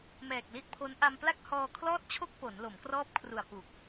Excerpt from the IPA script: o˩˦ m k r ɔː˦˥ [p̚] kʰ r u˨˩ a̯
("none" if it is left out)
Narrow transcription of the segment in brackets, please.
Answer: p̚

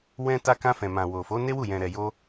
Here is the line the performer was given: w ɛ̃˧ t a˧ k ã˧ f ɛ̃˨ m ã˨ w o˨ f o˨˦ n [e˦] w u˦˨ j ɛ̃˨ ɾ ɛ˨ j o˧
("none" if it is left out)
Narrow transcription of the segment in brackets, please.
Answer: e˦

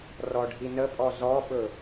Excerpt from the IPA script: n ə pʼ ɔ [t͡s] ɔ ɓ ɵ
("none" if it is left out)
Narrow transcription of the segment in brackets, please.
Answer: z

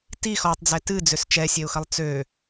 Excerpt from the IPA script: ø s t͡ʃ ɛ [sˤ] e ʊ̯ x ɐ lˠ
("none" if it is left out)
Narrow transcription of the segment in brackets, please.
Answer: sʲ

